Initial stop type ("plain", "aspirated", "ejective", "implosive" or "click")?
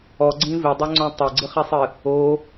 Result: click